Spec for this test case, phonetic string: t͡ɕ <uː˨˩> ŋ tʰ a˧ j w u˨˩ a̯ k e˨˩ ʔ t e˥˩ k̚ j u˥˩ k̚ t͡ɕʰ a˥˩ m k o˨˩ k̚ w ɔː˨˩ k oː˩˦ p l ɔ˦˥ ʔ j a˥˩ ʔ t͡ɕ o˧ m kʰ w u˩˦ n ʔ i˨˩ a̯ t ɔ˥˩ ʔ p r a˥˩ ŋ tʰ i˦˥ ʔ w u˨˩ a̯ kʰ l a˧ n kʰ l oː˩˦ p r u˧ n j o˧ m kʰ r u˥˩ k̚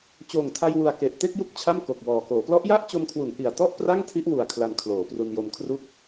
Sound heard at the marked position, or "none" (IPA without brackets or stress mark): oː˨˩